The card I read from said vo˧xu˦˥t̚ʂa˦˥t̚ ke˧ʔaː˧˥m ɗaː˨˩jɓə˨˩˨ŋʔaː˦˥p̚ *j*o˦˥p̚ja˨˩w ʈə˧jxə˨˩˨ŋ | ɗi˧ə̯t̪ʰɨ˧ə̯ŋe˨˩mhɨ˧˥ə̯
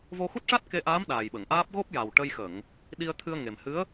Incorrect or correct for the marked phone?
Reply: incorrect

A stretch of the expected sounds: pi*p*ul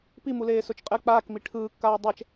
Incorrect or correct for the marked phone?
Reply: incorrect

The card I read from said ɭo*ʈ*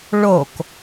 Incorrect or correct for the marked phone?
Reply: incorrect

